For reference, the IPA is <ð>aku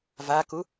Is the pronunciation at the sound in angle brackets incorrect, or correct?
incorrect